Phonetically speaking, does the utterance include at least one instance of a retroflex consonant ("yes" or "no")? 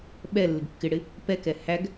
yes